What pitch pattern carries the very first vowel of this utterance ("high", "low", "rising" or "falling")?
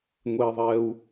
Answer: high